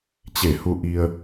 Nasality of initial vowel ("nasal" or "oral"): oral